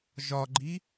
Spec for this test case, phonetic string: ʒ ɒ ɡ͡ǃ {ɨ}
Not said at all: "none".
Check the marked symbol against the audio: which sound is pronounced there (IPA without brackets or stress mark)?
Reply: i